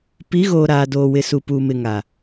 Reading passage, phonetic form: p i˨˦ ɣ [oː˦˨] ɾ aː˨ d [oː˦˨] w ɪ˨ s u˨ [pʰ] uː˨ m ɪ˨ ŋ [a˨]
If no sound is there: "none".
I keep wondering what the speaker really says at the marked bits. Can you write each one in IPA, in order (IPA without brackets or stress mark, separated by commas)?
oː˨, oː˨, p, a˨